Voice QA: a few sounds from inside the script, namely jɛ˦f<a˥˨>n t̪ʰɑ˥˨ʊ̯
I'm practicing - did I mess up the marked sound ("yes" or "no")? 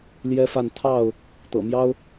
no